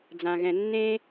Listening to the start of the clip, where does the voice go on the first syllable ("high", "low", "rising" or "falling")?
low